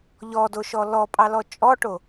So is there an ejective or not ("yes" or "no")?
yes